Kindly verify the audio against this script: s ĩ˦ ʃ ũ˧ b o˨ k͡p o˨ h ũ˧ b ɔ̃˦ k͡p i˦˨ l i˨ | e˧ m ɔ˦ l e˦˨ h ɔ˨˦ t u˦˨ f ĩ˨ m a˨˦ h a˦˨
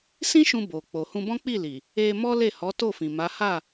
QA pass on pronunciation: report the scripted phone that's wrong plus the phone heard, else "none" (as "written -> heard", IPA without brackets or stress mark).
u˦˨ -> o˦˨